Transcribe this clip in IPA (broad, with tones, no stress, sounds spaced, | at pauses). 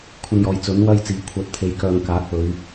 kʷʰ ɐ˧ n j ɔː˨ j t͡s ɵ˨˥ n w ɐ˥ j t͡s iː˨˥ kʷʰ œː˨ t̚ t̪ʰ e˨ j k œː˨ ŋ k aː˨˥ k̚ p ɵ˨˧ ɥ